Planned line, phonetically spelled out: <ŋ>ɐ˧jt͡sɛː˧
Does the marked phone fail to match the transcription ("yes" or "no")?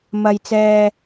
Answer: yes